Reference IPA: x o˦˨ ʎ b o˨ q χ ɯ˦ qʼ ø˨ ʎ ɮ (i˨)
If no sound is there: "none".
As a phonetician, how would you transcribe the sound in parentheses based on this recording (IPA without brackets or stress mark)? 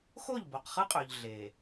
e˨